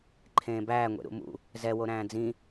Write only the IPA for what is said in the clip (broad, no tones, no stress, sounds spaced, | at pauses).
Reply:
ǃʰ ẽː b æː ŋʷ ḛ ɾ ṵ m ṵ | z ɛ w o ɾ æ̃ː d͡z ĩ